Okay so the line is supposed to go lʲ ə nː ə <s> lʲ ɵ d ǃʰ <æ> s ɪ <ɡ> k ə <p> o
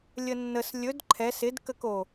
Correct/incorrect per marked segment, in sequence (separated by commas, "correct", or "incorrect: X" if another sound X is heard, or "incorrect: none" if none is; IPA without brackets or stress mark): correct, incorrect: ɛ, incorrect: d, incorrect: k